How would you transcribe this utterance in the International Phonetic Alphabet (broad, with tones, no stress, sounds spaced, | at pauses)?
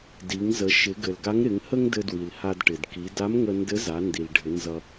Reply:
d i˩˧ ŋ z ə˩˧ ʃ ɪ˩˧ ɡ ɘ˩ l ɡ a˧˥ ŋ ɾ ɪ˩˧ ŋ h ə˥ ŋ d ɘ˧ d w i˩ l h a˧ d ʈ ɪ˩ d k i˩˧ d a˧˥ m ŋ ə˧ n d ɘ˧˥ z a˩˧ n d i˩ l ɖʱ ɪ˩˧ n z ʌ˧